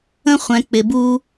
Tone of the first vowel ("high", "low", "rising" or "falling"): high